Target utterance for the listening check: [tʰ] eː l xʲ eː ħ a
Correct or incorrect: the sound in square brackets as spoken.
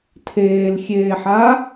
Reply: correct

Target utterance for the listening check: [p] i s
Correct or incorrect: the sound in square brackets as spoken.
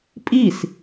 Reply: incorrect: pʼ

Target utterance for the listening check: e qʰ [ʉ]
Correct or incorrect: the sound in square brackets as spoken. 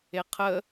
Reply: incorrect: ə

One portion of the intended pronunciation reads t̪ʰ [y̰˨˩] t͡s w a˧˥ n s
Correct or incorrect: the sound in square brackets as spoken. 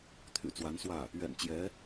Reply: correct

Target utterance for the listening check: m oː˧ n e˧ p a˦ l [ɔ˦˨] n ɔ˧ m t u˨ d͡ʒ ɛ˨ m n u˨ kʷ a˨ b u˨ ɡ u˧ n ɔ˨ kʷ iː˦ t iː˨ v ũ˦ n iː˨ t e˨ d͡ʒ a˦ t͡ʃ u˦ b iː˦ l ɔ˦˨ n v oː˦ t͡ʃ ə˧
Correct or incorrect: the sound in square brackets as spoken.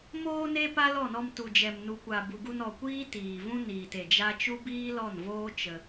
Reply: correct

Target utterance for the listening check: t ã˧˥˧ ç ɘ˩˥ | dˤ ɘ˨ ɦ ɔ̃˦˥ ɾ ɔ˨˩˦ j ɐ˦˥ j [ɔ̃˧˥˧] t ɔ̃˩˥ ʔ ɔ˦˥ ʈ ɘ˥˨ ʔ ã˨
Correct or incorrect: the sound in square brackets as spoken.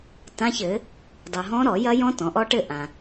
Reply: incorrect: ɔ̃˦˥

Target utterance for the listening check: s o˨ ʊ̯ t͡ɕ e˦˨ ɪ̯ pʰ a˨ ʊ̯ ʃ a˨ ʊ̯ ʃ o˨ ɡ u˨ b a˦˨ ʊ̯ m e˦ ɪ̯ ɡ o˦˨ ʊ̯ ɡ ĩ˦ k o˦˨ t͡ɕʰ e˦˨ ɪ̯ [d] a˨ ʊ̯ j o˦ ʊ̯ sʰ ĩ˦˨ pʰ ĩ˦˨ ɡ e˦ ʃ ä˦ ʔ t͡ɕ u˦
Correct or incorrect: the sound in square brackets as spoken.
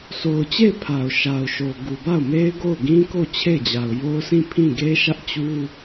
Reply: incorrect: d͡ʑ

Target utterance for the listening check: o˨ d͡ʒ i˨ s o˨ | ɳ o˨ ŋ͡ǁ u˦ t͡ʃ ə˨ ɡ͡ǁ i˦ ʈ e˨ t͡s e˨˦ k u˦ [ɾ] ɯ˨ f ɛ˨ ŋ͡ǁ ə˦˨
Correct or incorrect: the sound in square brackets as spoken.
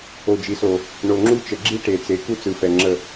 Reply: incorrect: t͡s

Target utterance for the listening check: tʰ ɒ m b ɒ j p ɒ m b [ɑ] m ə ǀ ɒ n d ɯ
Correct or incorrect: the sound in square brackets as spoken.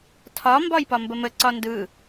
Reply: incorrect: ə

